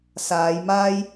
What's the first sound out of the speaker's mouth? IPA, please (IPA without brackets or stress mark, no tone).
s